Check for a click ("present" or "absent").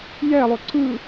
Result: present